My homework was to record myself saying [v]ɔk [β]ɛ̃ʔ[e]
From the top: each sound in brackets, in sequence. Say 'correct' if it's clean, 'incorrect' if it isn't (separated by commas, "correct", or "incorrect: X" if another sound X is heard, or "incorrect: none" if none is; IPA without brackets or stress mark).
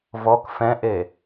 correct, incorrect: f, correct